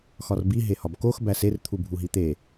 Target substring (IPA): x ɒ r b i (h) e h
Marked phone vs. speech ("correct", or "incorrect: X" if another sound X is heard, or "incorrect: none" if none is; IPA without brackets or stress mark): incorrect: ɦ